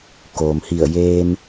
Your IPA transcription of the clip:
koː˩mhi˧˩ə̯ jeː˧m

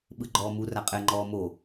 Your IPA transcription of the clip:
ɓɯɡ͡ǃɔːmu raqʼɛŋ͡ǃɔː mo

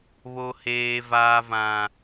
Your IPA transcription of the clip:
βo˨heː˨ vaː˨vã˨

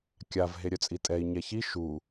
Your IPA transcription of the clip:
kʲav ɦeɾʲœt͡sʼitʼɛi̯ ɲɛçi ʃu

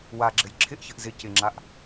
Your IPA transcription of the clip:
waɡ͡ǁɘj ǁʰɪʔçɘʔ zɪ cɪŋ͡ǁaʔ

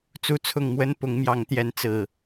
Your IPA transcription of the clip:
t͡su˦t͡sʰʊ˥˨ŋ mwə˦n pʊ˨˦ŋmjɑ˨˦ŋt̪jɛ˨˦n t͡sɹ̩˨˩

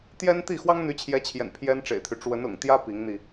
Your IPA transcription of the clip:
t̪jɛ˥nt̪i˥˩ xwɑ˥ŋn̪y˧˥t͡ɕʰjɛ˧˥t͡ɕʰjɛ̰˨˩n pʰjɛ˥nʈ͡ʂḛ˨˩ɪ̯t̪ʰy˦ ʈ͡ʂwə˧˥nʊ̰˨˩ŋt̪jä˥ pi˧˥ŋn̪i˧

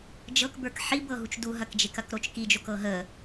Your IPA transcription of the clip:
d͡ʒɤkbə˞k ħibɤ ɦut͡ʃduɦɐkd͡ʒek ɐkɾot͡ʃkid͡ʒok ɤɦə

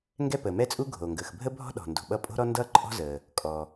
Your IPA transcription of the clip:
ŋɡɛ˥pəː˩mɛ˥t͡sʼu˥ ɡʱoː˩ŋɡəː˩x bʱə˥bʱɔ̤˥ɗɔ̤˩ndo̤˩ ɓʌ˥ pʼo̤˥ɾɔ˥ndʌː˥ ǃʼɔ̤˥zəː˩ | kʼɔ˩

